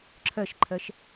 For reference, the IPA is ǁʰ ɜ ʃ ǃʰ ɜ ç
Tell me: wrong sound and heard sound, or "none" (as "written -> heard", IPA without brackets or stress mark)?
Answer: ç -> ʃ